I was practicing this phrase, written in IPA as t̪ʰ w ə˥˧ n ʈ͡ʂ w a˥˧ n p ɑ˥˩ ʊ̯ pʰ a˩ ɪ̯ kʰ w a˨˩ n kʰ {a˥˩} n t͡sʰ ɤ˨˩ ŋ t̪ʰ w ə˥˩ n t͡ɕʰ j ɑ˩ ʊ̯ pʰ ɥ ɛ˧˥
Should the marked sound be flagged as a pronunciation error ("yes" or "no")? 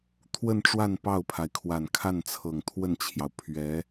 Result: no